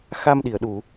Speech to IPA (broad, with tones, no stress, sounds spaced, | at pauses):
x a˧ m ɗ i˧˩ ə̯ ɗ u˧˩˨